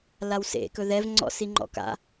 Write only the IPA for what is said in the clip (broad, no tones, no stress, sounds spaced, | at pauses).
l a w s ḛ k ɵ ð ɛ v ŋ͡ǀ ɔ̰ s i ŋ͡ǃ ɔ̰ k a̰